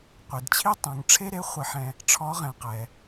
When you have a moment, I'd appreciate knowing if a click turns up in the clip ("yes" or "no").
no